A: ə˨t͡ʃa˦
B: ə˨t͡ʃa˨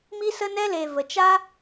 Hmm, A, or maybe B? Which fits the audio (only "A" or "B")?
A